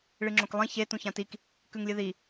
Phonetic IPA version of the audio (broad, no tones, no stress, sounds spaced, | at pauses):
ɭ ɨ ŋ͡ǁ õ k lˠ ĩ ç e t ũ ç ã t i k | k ʉ ŋ lʲ ɨ ð i